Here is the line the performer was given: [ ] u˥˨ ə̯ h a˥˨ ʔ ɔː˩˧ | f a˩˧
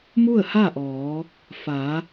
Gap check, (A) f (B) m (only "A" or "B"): B